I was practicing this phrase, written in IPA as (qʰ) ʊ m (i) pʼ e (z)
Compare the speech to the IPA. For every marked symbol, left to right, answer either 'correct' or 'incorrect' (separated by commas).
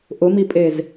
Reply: incorrect, correct, correct